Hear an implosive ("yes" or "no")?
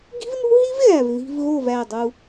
no